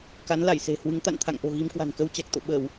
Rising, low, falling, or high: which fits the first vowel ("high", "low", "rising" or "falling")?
rising